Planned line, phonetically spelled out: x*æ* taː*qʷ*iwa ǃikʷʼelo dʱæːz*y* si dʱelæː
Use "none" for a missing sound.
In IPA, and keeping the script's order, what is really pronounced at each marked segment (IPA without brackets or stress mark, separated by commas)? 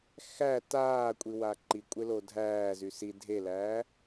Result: æ, kʷʼ, y